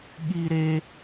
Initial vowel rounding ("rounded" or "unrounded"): unrounded